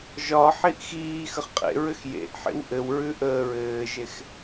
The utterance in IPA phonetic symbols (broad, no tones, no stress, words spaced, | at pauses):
ʒɒħiʔ xiːxəχ qʼḛɹɘx jḛʔħḭw ʔɘwɹʉ ʔəːɹɘːʒex